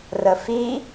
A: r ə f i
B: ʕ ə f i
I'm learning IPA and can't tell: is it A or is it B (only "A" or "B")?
A